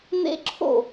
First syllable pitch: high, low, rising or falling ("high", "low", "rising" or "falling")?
high